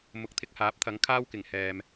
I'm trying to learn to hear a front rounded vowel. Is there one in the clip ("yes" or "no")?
no